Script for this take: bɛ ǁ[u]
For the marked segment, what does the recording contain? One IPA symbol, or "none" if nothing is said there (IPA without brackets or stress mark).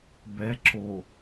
o